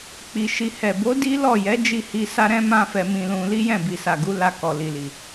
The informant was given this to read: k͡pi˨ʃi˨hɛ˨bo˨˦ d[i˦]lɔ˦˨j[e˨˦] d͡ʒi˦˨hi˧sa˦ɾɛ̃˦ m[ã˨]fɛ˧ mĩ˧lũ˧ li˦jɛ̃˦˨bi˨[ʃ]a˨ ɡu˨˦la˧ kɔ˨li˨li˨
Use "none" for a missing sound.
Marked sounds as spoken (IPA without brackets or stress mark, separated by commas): i˦, ɛ˨˦, ã˦, s